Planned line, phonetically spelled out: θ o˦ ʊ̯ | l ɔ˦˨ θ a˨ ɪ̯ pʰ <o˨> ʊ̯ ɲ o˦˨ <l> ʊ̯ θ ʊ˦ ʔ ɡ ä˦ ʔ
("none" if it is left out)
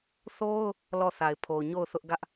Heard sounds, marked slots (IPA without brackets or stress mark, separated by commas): o˨, none